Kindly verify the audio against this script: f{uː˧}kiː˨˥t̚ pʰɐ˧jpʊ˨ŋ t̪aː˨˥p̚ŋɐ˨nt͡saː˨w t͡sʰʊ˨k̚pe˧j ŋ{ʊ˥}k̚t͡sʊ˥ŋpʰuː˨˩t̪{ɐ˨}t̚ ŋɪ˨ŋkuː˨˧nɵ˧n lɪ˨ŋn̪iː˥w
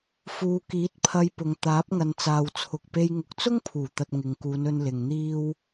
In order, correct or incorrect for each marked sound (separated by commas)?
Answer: incorrect, incorrect, correct